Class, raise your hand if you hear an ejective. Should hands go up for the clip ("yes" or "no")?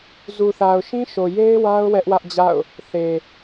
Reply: no